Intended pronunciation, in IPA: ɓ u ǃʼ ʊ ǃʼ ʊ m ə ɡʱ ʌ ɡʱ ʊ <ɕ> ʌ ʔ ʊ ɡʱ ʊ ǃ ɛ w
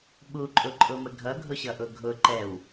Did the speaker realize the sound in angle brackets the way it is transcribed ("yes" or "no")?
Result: yes